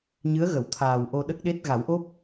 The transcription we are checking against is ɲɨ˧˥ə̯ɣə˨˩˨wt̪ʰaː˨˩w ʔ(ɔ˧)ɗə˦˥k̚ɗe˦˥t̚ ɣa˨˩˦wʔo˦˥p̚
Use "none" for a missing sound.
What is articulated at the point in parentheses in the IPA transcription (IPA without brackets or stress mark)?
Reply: o˧